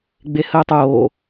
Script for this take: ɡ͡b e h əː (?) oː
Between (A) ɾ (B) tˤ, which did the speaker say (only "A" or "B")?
B